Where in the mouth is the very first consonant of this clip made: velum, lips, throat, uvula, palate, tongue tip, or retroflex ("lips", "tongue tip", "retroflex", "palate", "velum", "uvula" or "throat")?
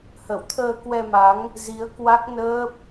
throat